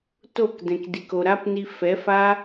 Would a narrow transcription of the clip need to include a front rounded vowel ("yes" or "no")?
no